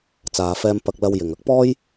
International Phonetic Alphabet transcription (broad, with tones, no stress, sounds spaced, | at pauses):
t͡s aː˨ f ɛː˧ m p ɐ˧ k̚ l ɐ˧ w j ɪ˨ ŋ ɐ˥ k̚ p ɔː˥ j